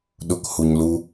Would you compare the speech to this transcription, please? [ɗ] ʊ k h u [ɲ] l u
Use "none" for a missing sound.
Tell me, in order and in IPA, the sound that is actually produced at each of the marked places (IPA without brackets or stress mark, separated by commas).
ɗ, ɲ